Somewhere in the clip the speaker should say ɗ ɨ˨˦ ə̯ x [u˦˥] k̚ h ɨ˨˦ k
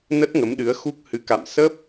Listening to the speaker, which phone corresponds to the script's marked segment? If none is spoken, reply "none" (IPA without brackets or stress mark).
u˦˥